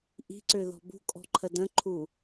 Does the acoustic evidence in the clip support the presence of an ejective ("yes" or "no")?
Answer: yes